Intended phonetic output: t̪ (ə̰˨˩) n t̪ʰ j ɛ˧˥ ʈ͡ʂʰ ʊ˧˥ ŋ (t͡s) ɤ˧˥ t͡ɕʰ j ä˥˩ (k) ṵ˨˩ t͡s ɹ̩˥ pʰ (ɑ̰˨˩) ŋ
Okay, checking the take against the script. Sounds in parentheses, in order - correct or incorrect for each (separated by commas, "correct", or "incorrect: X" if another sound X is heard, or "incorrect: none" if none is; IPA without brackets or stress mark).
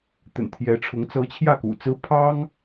correct, correct, correct, incorrect: ɑ˥